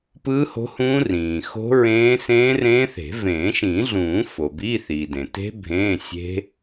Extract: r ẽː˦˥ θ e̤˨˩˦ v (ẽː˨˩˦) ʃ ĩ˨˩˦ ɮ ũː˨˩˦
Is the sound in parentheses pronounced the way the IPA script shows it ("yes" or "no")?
yes